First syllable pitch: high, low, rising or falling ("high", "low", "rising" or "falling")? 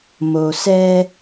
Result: low